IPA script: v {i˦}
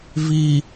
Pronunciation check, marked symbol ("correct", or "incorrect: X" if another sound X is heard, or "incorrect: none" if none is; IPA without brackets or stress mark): incorrect: i˨